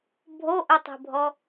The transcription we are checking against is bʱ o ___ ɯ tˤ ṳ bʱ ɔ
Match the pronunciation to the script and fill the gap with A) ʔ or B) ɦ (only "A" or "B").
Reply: A